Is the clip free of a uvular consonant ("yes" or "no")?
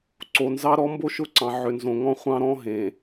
no